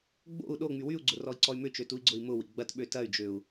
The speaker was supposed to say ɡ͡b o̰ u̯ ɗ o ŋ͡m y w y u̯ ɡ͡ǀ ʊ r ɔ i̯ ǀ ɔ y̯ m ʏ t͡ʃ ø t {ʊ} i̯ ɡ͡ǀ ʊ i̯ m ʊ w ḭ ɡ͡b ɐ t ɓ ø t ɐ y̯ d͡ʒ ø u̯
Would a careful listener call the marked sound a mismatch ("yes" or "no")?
yes